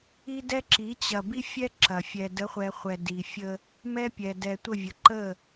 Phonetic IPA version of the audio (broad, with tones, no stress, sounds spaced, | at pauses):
i˦ d ɛ˦ ǁ i˨˦ t͡ɕ ɐ˨ b i˦ fʲ ɛ˦ ǁ ɐ˨ fʲ ɛ˨ d ə˨˦ χʷ ɛ˨ χʷ ɛ˨ d i˨ fʲ ə˦ | m ɛ˦ pʲ ɛ˨ d ɛ˨ tʷ ə˦˨ vʲ ə˨ ǃ ə˦˨